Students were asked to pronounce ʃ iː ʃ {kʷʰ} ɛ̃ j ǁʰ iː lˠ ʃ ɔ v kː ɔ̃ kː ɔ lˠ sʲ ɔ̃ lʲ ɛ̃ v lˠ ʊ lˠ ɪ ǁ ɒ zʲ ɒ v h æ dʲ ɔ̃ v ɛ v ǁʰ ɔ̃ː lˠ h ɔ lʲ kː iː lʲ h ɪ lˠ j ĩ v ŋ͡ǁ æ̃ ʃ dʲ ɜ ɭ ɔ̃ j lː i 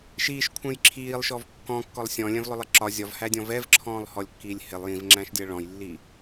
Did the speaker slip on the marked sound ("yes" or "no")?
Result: no